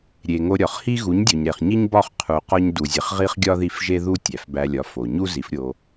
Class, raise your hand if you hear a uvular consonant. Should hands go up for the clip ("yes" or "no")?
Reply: yes